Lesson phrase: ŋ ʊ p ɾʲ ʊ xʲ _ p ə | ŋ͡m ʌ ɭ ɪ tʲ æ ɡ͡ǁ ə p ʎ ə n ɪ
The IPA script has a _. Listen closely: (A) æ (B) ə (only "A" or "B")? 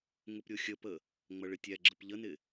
B